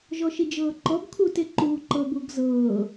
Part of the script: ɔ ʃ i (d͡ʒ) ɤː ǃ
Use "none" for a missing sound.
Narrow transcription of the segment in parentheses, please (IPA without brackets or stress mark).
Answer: d͡ʒ